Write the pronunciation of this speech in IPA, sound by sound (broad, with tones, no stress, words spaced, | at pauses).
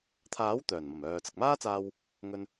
t̪ʰaː˨˥w t̪œː˨˩nmɐ˨˩m œː˨ t͡sɐ˨k̚maː˥t͡saː˧w | ŋɵ˧n